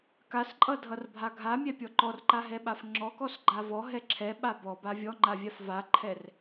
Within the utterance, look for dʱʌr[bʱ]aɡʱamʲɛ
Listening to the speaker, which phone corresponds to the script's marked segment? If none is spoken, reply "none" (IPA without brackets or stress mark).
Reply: bʱ